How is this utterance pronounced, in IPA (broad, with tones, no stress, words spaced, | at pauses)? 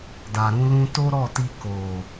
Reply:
da˨ɾũ˧lũ˧ to˦ɾɔ˦˨ti˧ ko˨